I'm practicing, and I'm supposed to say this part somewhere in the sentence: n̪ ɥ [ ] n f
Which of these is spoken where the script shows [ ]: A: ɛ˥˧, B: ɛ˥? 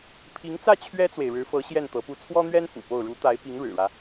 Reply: B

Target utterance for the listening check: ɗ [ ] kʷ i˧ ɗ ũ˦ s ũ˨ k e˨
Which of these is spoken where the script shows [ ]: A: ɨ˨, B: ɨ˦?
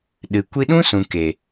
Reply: A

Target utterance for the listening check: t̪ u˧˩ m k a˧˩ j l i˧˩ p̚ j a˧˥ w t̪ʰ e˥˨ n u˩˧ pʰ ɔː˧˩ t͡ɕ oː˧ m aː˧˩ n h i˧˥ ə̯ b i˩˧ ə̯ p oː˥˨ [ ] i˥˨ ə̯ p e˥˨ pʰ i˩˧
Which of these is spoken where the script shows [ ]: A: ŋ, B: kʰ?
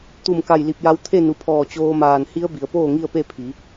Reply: A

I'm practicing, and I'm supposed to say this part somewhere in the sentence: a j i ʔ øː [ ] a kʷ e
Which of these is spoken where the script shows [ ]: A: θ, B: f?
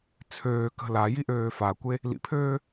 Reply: B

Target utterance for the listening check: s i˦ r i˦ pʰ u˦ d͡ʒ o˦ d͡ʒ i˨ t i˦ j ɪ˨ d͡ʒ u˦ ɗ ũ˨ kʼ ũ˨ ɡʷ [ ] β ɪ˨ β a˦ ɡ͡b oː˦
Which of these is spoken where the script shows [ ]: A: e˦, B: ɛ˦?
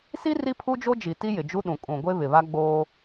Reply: A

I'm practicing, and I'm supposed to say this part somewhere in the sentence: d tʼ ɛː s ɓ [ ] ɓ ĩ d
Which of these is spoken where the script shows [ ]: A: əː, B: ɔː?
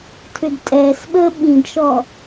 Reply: A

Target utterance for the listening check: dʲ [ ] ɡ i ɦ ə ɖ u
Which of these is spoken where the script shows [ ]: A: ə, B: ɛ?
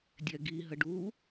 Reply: B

